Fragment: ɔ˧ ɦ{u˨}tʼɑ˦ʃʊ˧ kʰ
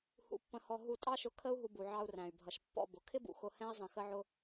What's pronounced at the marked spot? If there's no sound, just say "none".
u˧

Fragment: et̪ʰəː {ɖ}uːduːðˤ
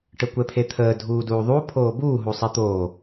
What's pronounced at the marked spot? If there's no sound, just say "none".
dʱ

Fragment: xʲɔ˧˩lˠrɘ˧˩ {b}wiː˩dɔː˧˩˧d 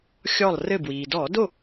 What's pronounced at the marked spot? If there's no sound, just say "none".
b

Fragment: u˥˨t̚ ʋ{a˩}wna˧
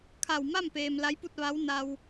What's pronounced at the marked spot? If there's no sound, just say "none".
a˧˥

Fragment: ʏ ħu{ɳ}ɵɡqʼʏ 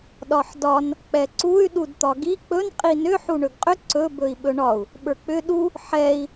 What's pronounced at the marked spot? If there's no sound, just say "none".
ɳ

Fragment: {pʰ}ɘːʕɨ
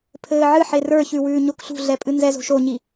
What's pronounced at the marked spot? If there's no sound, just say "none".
pʰ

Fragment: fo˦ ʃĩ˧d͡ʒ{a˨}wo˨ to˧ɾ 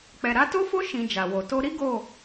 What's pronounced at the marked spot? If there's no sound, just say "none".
a˨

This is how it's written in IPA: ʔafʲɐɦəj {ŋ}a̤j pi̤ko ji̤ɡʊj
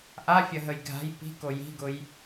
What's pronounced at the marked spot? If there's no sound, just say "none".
ɡʱ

